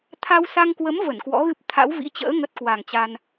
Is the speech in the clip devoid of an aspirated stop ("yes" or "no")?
no